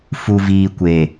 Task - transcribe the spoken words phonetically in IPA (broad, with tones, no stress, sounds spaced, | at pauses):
f u˨ v iː˨ kʷ e˨